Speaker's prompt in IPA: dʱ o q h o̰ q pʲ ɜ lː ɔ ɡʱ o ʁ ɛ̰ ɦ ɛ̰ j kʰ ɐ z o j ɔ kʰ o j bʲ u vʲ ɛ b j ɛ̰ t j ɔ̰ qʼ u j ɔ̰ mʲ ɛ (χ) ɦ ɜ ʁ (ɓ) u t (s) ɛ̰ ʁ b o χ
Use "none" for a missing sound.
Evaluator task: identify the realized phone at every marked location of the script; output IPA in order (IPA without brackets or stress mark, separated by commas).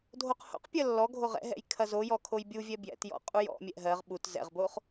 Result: ʔ, ɓ, z